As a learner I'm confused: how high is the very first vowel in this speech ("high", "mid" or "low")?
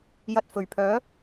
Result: low